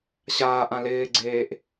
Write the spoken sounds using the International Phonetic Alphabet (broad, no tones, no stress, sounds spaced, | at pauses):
ɕ aː ʔ ã l ɪː ɡ͡ǀ eː ʔ